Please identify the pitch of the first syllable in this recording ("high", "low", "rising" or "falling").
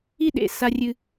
high